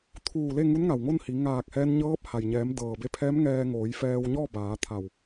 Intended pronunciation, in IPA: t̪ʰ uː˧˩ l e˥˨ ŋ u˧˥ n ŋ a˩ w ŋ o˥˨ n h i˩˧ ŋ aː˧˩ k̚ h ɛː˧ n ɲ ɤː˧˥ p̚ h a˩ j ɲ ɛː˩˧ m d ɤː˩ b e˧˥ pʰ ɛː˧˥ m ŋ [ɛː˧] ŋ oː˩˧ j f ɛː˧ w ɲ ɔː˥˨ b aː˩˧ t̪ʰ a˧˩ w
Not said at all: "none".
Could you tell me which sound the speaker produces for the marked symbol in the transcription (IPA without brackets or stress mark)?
ɛː˧